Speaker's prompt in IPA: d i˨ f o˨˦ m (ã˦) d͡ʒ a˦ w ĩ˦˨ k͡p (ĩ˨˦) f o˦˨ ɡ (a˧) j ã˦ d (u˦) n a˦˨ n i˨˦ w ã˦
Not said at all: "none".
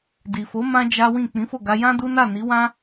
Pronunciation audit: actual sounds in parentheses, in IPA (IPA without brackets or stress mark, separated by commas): ã˦, ĩ˨˦, a˧, u˦